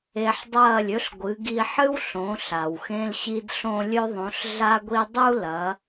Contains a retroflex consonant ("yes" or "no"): no